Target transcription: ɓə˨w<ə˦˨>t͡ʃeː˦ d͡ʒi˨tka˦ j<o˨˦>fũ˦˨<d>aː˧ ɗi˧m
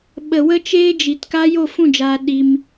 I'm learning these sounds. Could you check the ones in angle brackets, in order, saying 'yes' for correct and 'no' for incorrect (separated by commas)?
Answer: no, no, no